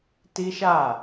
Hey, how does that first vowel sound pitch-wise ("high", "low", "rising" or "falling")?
high